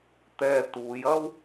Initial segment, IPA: t̪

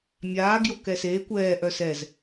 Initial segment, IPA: mʲ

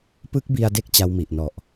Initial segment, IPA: p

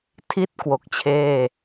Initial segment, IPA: tʰ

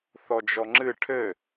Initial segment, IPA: θ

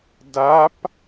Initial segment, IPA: d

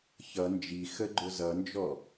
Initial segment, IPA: ç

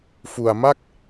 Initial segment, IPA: f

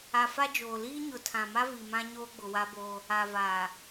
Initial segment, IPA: a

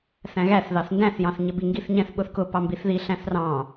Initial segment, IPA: θ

